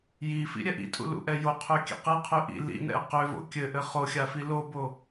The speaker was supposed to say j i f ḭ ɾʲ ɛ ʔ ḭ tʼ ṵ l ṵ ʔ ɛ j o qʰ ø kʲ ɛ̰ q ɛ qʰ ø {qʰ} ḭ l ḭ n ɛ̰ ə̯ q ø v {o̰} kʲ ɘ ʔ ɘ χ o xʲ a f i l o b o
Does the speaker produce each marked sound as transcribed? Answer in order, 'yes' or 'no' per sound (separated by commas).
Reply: no, yes